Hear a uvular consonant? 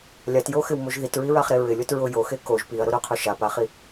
yes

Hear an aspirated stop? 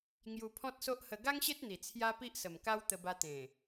yes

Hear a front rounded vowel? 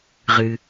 no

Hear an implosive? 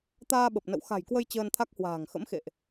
yes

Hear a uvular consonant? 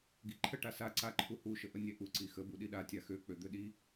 no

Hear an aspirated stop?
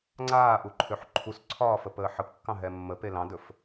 yes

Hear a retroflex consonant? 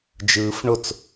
yes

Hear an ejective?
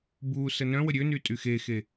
yes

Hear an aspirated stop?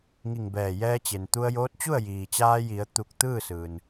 no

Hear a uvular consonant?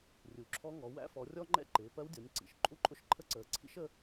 no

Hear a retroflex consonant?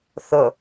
no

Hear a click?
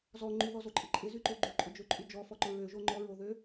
yes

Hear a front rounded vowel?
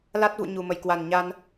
no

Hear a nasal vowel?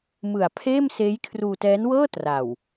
no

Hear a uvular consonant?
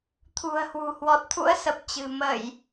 no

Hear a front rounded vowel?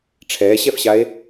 no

